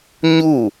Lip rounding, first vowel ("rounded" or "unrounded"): rounded